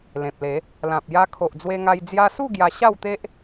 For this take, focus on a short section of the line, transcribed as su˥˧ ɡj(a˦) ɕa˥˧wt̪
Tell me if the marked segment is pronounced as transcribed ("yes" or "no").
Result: no